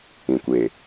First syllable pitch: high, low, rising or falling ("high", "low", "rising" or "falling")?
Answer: low